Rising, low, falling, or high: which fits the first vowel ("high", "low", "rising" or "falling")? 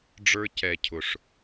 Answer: high